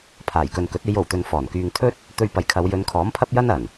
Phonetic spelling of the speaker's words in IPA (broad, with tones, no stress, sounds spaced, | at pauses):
pʰ aː˨˩ j k ɵ˨ n k ɵ˨˥ t̚ e˨˧ j o˨˩ w t̪ ɵ˨ n f ɔː˨˩ n k yː˧ ŋ t̪ʰ ɵ˥ t̚ | t̪ ɵ˧ ɥ p ɐ˨˧ j kʰ ɐ˨˧ w j ɵ˨˧ n kʰ ɔː˨˥ m pʰ ɐ˥ p̚ j ɐ˥ n ɐ˨˩ n